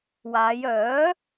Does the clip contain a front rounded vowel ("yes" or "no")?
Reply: yes